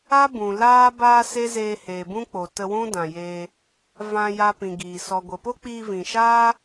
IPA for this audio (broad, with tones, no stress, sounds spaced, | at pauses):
a˦ b ũ˨ l aː˦ b aː˦ s e˦ z eː˧ h eː˨ b ũ˦ k͡p o˨ t ə˧ w ũ˦ d ã˨ j eː˧ | v ã˧ j a˦ p ĩ˨ ɡ iː˨ s ɔ˨ ɡʷ ə˨ p o˦ k͡p iː˧ v ĩ˨ ʃ aː˦